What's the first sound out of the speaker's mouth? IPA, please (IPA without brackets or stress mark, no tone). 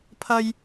pʰ